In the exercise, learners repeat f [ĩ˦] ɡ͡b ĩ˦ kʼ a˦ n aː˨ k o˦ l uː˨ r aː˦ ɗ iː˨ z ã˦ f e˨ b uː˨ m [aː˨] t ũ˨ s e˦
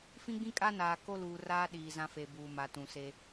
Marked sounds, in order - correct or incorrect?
correct, incorrect

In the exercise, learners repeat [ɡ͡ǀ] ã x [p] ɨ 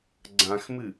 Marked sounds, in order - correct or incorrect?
correct, incorrect

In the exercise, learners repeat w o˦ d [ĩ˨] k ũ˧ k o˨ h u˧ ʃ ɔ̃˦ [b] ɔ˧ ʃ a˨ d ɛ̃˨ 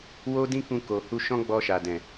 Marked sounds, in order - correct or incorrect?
incorrect, incorrect

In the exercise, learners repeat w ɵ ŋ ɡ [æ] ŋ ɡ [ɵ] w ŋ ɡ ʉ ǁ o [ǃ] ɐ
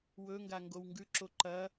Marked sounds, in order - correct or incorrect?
incorrect, incorrect, correct

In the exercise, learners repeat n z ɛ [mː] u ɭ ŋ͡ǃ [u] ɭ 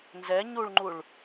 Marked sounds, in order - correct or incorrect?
incorrect, correct

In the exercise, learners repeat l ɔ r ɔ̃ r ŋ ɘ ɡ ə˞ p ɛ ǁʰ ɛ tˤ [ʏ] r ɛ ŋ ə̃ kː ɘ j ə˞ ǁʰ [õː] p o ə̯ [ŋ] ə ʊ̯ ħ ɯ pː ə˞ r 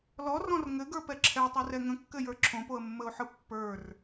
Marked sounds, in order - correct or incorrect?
incorrect, incorrect, incorrect

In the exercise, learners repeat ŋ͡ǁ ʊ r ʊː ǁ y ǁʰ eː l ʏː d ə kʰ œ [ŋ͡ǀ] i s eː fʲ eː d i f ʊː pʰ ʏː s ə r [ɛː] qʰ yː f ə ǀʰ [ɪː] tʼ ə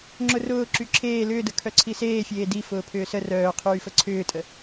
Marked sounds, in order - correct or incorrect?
incorrect, incorrect, incorrect

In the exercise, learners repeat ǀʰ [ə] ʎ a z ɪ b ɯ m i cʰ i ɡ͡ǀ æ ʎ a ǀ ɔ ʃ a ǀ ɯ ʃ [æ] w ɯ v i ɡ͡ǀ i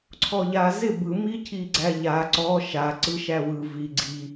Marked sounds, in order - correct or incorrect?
incorrect, correct

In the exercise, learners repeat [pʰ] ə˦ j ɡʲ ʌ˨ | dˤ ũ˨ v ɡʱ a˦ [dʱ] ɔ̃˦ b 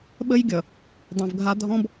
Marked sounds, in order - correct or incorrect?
incorrect, correct

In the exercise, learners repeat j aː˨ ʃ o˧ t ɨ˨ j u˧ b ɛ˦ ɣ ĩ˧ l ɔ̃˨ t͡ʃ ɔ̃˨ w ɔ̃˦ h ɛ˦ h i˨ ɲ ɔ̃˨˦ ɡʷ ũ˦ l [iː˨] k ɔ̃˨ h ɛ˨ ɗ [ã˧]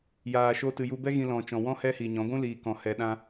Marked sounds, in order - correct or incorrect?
correct, correct

